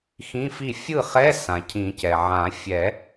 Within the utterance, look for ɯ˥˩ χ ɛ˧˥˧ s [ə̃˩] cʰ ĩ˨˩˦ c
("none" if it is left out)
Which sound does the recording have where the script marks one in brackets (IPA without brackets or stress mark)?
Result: ã˩